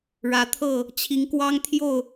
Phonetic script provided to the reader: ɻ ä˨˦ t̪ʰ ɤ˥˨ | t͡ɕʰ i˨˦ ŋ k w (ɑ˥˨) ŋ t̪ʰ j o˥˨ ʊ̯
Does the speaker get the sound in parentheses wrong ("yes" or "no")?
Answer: yes